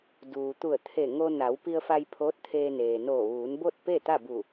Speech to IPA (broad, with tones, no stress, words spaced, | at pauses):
duː˩t̪u˧˩ə̯t̪ʰe˧˩ ŋo˧na˩˧wpi˧ə̯fa˧j pʰoː˧˥t̚t̪ʰeː˧neː˩noː˧˩ ʋuː˩˧nbo˥˨t̚pe˥˨ t̪a˥˨bu˧˩